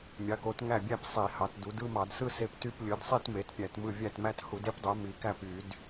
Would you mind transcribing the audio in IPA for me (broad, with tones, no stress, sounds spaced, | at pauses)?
mʲ ɑ˩˥ k o˩˥ t ŋ æ˥˩ bʲ æ˥˧ p sˤ i˧˩˧ h ɑ˩˥ t d u˩˥ d ɯ˥˧ m ɑ˧˩˧ d s ɯ˥˧ s e˥˧ p t y˥˧ p lʲ ɯ˩˥ d sˤ e˥˧ t m e˩˥ t pʲ æ˧˩˧ t m ɯ˥˩ vʲ æ˥˩ t m æ˥˧ t h u˧˩˧ d e˥˧ p dˤ ø˩˥ m i˩˥ k æ˥˩ p y˧˩˧ d